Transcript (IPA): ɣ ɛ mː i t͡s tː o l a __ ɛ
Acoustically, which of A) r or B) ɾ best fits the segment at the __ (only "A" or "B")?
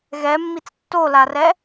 A